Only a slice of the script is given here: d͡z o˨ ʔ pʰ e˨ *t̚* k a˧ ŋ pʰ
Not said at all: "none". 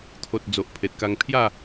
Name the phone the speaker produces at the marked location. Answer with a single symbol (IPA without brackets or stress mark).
t̚